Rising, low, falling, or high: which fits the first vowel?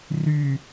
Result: low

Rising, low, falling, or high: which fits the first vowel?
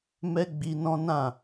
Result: high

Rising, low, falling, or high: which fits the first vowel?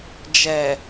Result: low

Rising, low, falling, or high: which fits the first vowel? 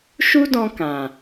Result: high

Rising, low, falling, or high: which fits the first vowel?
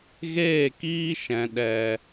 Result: falling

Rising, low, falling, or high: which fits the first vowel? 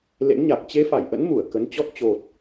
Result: rising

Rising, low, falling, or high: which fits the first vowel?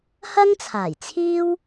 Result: high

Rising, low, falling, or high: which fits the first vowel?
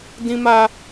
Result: high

